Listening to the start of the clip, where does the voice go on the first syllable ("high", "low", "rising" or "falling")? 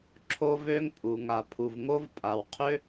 high